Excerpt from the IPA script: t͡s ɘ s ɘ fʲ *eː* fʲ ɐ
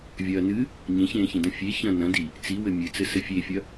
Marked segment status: incorrect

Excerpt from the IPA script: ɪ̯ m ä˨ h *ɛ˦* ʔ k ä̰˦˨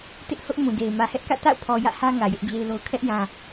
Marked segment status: correct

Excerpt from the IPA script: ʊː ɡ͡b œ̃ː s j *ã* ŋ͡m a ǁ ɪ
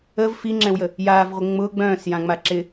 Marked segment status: correct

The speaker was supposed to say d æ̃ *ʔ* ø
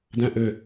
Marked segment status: correct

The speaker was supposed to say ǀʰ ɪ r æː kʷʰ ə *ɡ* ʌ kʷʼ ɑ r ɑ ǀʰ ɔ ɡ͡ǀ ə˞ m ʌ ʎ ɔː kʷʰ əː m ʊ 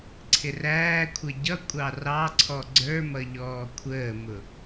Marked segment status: incorrect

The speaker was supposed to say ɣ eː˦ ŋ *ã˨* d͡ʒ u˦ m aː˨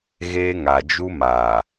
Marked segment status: incorrect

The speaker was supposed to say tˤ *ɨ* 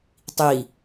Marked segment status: incorrect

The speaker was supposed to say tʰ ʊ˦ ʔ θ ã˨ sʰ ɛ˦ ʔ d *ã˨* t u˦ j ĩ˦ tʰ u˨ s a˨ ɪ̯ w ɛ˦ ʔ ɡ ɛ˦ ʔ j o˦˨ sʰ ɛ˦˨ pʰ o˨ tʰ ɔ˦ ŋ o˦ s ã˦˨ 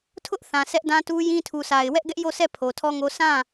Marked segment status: incorrect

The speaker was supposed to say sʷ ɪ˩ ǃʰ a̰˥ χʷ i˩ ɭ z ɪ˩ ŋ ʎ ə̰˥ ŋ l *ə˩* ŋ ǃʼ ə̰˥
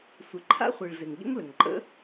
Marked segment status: correct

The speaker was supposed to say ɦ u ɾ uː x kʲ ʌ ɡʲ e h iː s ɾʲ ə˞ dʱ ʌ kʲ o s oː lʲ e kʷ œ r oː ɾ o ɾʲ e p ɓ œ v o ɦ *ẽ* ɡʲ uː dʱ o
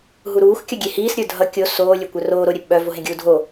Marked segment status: correct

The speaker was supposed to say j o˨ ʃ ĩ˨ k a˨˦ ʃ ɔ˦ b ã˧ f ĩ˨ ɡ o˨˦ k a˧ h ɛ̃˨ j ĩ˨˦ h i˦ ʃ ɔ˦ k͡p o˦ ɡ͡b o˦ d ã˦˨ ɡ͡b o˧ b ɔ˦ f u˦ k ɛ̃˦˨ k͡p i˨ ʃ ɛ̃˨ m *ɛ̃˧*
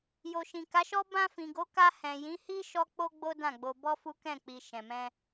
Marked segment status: correct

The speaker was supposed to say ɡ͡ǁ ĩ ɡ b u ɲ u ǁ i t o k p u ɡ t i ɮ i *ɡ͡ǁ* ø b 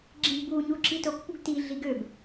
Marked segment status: incorrect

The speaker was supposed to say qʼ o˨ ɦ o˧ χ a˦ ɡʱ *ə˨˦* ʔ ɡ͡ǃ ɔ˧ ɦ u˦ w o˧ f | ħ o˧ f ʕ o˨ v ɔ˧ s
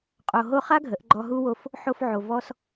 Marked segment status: correct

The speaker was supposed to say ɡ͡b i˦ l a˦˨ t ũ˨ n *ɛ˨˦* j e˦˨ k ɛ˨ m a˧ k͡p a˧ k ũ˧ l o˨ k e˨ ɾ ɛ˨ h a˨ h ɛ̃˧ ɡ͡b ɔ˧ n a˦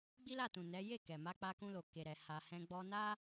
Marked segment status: correct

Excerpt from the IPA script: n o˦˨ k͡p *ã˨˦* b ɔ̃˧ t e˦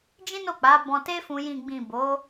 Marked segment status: incorrect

